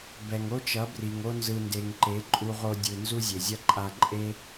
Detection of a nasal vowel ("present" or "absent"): absent